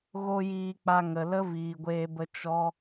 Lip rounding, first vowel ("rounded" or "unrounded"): rounded